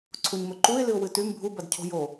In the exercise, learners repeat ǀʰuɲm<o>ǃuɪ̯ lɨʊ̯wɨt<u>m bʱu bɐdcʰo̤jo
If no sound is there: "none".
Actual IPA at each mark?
ɵ, ʉ

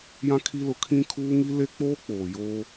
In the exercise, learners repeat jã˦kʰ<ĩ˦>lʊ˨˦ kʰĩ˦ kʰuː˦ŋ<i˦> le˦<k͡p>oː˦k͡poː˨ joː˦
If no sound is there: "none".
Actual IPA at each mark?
i˦, i˦, k͡p

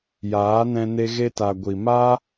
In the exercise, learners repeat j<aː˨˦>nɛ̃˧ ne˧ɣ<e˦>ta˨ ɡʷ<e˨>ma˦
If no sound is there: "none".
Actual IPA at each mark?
aː˨˦, e˧, i˨

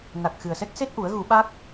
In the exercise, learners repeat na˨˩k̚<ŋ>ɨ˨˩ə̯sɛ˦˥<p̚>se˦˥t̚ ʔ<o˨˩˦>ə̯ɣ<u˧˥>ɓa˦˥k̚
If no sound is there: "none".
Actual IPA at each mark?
x, k̚, u˨˩˦, u˨˩˦

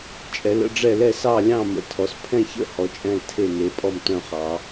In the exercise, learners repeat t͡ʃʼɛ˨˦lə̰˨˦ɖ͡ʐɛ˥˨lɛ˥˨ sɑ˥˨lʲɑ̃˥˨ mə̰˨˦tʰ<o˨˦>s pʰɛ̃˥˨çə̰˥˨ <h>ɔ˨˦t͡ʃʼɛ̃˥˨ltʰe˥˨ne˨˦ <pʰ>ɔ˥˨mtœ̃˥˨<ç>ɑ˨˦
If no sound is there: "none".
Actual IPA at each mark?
ɔ˨˦, h, pʼ, χ

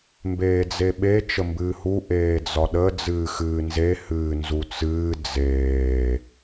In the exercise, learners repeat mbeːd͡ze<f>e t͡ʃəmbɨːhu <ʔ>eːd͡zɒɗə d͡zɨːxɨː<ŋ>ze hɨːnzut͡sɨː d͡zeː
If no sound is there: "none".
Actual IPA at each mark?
ɓ, ʔ, n

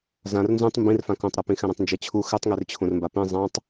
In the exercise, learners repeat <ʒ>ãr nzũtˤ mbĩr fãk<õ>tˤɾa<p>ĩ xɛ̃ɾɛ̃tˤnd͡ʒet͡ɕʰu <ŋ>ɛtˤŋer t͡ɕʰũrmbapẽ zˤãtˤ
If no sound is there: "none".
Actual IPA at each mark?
z, õ, p, x

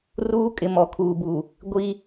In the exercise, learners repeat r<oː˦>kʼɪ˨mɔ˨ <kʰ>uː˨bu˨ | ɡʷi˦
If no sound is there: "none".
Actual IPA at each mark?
uː˦, kʰ

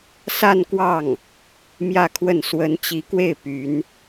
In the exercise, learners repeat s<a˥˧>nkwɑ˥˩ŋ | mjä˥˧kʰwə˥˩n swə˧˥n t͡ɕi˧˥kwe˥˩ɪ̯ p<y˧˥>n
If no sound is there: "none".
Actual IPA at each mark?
a˥˧, y˧˥

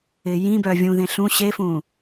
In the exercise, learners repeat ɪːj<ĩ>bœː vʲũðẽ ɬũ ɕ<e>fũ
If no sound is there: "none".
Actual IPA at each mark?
ĩ, e

